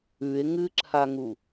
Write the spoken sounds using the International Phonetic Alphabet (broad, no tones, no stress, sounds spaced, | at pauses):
ʉ e̯ ŋ ɨ ǁʰ a ŋ u